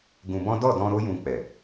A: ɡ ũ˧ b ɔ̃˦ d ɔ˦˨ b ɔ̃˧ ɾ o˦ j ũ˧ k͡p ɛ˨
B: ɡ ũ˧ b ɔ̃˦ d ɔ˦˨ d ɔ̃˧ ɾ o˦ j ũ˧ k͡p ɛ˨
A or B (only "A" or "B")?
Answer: B